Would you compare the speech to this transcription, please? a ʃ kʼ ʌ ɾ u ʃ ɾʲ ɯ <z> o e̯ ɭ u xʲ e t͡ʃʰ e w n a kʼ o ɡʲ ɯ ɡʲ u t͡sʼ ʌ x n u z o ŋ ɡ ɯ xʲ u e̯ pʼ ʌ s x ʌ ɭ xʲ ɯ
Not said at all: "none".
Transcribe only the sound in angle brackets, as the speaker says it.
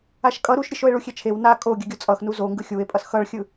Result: ʃ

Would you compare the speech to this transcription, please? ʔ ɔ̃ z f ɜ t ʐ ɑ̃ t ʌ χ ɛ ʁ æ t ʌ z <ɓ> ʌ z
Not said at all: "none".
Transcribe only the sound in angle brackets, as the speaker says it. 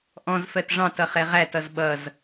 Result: ɓ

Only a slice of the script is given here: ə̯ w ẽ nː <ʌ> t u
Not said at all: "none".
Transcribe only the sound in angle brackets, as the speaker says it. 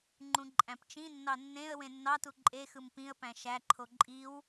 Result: ɑ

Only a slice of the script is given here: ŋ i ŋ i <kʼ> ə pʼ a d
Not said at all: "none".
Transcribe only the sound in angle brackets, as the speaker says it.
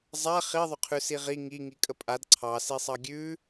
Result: kʼ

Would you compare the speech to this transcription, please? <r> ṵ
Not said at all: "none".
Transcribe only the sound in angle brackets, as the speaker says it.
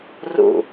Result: r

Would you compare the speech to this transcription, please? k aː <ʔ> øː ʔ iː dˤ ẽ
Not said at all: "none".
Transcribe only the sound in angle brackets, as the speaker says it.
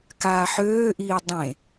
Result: ħ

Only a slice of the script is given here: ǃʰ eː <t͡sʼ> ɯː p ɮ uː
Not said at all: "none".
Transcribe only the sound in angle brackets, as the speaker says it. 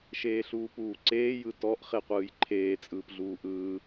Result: t͡sʼ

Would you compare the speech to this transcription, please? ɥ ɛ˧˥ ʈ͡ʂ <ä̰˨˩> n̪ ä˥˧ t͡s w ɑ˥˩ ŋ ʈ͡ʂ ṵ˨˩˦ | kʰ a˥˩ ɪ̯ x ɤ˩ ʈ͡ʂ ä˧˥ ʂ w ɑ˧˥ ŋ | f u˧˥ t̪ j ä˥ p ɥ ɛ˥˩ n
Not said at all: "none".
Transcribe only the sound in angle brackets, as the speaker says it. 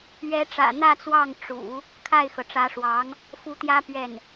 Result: ä̰˨˩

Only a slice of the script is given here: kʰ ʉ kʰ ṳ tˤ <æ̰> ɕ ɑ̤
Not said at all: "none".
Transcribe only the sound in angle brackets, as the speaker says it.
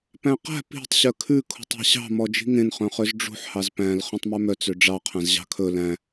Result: æ̤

